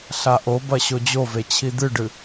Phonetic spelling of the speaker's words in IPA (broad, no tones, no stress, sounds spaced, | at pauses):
ɬ a ʔ o b ɐ ɕ o d͡ʑ o v e t͡ɕʰ i d̪ ɨ ɖ ɨ